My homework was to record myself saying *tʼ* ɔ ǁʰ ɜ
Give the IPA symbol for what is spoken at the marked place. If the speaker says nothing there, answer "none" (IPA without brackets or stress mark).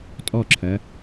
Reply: tʼ